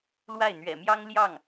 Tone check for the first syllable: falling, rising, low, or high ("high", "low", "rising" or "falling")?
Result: falling